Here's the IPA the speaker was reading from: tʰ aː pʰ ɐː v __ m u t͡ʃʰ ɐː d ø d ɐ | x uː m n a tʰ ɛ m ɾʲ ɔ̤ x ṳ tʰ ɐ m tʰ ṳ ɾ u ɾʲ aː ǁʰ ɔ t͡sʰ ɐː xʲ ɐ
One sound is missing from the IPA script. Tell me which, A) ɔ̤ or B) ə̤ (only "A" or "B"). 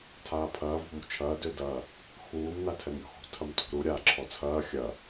A